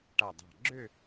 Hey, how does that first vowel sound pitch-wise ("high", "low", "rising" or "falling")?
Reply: low